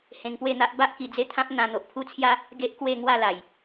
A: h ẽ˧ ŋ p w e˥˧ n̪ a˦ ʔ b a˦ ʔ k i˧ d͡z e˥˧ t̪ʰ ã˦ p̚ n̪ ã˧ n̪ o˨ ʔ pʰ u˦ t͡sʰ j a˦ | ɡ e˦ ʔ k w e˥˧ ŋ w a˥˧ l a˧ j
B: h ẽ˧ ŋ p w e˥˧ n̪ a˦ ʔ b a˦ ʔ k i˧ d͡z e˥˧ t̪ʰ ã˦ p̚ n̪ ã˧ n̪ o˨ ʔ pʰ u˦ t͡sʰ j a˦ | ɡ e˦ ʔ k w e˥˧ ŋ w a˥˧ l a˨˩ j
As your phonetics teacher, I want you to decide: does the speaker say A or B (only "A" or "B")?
B